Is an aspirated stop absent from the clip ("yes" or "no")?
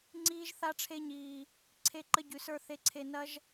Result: no